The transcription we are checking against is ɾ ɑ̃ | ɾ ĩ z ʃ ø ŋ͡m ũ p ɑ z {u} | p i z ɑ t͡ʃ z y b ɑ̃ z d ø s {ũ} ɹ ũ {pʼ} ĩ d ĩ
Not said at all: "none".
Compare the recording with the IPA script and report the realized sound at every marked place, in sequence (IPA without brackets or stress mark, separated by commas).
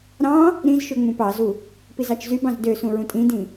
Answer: u, ũ, tʼ